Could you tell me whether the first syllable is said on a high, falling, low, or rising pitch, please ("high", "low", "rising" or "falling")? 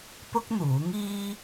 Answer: high